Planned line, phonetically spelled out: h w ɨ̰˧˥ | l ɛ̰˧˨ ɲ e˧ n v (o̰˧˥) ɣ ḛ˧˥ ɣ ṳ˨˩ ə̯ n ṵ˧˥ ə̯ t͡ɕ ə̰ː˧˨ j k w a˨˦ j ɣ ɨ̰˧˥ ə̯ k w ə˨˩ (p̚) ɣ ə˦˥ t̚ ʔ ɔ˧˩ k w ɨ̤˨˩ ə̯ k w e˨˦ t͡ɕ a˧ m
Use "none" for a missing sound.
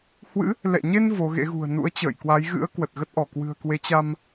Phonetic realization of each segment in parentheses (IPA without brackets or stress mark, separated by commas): o˨˦, t̚